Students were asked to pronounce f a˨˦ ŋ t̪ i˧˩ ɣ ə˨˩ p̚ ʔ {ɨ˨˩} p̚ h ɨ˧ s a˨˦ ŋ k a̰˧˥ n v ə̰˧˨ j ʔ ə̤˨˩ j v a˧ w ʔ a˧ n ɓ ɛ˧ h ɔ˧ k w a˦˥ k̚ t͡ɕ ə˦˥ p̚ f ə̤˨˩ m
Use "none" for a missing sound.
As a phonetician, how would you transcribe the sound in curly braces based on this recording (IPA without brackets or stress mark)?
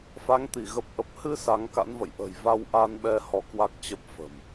ə˨˩